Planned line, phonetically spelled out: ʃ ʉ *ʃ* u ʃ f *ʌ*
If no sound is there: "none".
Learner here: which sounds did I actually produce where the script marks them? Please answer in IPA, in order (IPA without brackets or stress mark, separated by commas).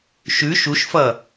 ʃ, ʌ